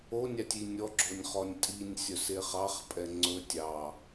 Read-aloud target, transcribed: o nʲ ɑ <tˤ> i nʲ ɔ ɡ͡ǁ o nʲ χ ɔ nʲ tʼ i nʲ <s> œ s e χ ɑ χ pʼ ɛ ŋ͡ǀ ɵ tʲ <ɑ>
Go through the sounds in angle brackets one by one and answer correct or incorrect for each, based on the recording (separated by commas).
incorrect, incorrect, correct